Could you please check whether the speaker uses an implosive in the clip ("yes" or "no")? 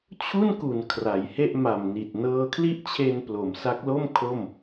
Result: no